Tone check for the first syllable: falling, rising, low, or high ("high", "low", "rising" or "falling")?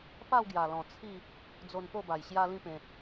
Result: falling